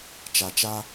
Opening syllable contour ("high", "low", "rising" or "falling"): low